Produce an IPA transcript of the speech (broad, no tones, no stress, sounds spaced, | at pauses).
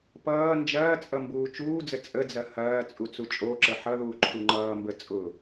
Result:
p ʌː n d͡ʒ ɐː t͡sʼ ʌ m b uː t͡ʃ uː d͡z ə t͡sʼ ə d͡z ɐ h ɐː t͡sʼ u t͡s u t͡ʃʼ o ǁ ə ħ ʌ ð uː ǃʰ u ŋ͡ǃ ʌː m b ə t͡sʼ ʊ